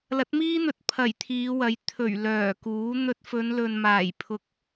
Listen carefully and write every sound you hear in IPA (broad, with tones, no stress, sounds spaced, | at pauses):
l ɐ˨˥ t̚ m iː˥ n̪ ɵ˨ t̚ pʰ ɐ˨˩ j t̪ʰ iː˨˧ w ɐ˨˥ j t̪ʰ ɵ˨˩ ɥ l œː˨˩ k uː˨˥ n̪ ɵ˧ t̚ f ɵ˨˧ n l ɵ˨ n m aː˨˩ j pʰ ʊ˨ k̚